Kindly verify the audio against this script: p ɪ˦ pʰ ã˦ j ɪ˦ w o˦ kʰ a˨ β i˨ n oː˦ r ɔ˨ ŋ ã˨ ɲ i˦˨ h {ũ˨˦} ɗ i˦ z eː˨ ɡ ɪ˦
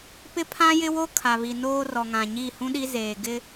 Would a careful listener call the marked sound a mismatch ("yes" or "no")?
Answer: yes